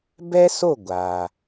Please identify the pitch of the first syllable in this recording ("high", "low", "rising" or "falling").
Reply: high